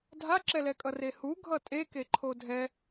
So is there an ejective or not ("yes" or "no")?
yes